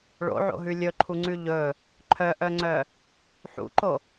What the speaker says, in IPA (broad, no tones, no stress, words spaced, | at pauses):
ɭo̰ʕo̰ɦʉ lʲɵǃʰuŋ͡ǀʉ ʎɵ | ǃʰœʔœŋ͡ǀœ | ħṵǃo